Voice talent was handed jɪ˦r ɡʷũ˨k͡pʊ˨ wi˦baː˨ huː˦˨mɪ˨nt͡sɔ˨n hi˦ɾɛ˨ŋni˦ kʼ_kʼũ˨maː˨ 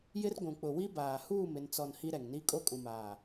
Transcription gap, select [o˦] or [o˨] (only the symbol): o˦